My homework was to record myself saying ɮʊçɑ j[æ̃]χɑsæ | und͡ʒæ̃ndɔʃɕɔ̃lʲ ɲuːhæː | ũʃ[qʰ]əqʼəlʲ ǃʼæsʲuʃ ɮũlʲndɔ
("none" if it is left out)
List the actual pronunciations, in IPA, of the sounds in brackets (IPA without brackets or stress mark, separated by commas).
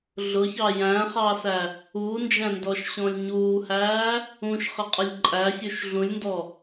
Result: æ̃, χ